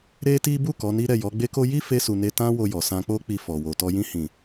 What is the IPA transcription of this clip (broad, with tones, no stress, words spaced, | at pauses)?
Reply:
ɾe˦ti˦ bu˦˨ kɔ˨˦ni˦ ɾɛ˦˨jɔ˨˦ɡ͡be˦ko˦ ji˦fe˧su˨ ne˧tã˦wo˧jɔ˨ sã˧k͡po˦k͡pi˧fɔ˨ wo˨tɔ˧ jĩ˧hĩ˨